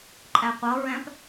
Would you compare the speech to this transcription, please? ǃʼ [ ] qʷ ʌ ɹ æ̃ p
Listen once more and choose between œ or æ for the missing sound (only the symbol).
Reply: æ